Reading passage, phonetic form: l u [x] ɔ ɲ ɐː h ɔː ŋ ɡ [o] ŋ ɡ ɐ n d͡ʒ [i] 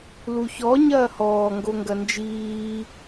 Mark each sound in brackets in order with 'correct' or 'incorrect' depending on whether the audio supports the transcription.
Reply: incorrect: ç, correct, incorrect: iː

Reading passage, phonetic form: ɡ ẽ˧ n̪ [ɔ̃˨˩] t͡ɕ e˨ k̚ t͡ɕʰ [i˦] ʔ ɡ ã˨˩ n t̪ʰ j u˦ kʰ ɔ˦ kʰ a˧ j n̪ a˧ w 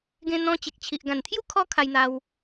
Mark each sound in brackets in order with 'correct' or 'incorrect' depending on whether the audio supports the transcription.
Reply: incorrect: ɔ̃˧, incorrect: i˨

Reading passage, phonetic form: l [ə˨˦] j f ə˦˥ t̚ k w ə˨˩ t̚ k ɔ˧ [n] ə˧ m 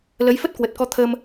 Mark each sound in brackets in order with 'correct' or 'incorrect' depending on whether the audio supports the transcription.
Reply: correct, incorrect: t̪ʰ

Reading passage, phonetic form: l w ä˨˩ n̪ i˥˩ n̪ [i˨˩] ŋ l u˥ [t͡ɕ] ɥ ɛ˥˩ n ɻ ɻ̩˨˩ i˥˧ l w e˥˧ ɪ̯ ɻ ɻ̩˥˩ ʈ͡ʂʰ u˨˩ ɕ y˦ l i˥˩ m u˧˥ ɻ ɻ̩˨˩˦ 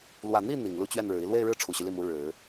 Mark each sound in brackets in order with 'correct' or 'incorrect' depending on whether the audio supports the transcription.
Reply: correct, correct

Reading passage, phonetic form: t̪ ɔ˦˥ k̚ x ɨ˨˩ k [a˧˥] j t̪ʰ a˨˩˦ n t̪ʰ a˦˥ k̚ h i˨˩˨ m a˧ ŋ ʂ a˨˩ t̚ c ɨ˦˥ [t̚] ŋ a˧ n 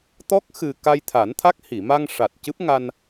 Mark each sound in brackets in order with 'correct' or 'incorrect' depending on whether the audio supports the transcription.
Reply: incorrect: a˧, incorrect: p̚

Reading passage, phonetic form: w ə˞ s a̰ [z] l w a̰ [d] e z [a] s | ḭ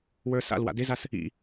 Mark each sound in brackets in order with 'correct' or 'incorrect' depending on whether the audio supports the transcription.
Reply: incorrect: none, correct, correct

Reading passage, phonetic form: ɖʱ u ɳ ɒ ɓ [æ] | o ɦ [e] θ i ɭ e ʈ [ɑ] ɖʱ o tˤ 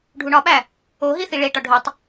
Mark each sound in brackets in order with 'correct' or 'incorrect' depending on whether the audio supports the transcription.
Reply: correct, incorrect: i, incorrect: ɒ

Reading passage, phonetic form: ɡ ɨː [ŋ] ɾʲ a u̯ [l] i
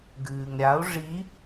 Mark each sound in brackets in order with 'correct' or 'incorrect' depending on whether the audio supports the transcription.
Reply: correct, incorrect: ʐ

